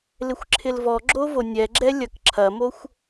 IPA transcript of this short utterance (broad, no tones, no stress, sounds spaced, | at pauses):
l ɪ xʷ ǁʰ ɪ l v ɔ ɡ͡ǁ o v o nʲ ɛ ɡ͡ǁ ɛ lʲ ɐ k ǁʰ ɐ m o xʷ